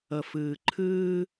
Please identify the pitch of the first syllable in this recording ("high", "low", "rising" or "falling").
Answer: low